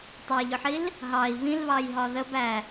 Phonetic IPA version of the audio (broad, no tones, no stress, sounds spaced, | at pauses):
tˤ ɑ j ʎ ʊ ħ i l | ɦ ɑ i̯ β ĩ l β ɑ j ɦ ɒ ð ə b æ